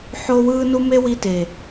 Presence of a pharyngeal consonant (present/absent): present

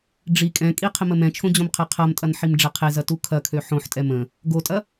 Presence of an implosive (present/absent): absent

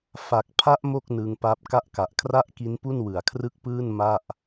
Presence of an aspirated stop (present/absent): present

